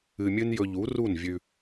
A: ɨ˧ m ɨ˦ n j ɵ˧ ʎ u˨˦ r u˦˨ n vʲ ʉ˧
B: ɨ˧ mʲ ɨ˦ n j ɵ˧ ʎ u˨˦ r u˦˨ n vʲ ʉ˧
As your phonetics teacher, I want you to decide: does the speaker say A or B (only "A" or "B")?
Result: B